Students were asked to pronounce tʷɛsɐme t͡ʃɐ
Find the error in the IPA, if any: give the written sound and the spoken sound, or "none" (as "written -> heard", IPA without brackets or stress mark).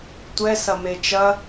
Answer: none